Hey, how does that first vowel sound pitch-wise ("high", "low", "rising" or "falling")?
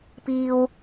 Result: high